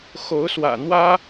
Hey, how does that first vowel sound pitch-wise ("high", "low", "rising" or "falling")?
rising